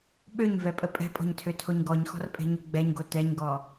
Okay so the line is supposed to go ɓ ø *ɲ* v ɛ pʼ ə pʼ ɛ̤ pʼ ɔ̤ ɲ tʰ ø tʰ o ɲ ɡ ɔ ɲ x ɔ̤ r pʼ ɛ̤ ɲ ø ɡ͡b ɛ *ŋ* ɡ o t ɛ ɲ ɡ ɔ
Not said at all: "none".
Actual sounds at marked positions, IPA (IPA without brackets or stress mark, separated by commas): ɲ, ɲ